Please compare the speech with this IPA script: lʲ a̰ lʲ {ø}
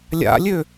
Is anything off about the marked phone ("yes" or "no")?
no